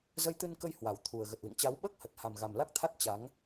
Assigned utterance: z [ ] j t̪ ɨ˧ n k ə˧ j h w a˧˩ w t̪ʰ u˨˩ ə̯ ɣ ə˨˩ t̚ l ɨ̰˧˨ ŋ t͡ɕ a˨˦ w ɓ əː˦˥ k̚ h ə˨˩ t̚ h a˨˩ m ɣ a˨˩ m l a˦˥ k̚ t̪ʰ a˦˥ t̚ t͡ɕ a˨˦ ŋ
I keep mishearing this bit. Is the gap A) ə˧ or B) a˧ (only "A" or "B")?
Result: A